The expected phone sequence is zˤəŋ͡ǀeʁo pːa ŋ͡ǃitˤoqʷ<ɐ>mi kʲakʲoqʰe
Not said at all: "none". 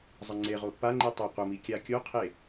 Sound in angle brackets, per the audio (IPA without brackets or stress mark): ɐ